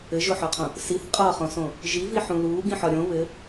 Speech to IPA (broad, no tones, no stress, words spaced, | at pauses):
ɘʒoħɒqʰõ | siθ qʼɒχõsõ | ʒiviħũ luːɡĩħɒ ɾʲõ βɘ